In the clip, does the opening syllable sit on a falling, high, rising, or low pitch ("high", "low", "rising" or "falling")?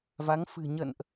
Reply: rising